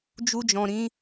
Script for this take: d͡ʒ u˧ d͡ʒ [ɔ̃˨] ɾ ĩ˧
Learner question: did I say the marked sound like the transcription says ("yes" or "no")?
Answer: yes